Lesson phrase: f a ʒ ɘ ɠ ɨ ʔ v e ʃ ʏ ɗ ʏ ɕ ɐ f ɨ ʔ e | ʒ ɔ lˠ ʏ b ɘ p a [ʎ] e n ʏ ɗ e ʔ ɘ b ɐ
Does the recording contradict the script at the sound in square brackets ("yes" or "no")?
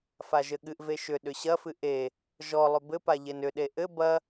no